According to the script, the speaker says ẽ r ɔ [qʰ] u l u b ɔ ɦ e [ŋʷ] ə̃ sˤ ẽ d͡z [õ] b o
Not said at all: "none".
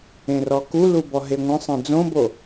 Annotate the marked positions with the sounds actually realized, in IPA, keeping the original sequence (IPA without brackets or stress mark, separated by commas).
k, ŋʷ, õ